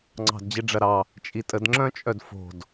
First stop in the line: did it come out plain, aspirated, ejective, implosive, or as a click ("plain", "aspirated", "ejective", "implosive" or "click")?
click